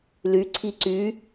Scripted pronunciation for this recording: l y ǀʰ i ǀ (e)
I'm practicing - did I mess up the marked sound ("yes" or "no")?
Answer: yes